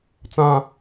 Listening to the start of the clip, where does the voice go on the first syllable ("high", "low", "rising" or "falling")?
low